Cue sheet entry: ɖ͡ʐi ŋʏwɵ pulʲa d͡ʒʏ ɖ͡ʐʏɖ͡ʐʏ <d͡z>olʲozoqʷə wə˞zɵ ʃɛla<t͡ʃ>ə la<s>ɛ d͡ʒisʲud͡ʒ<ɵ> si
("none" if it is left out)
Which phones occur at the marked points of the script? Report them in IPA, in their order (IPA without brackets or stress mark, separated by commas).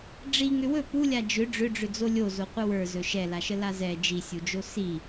d͡z, ʃ, z, o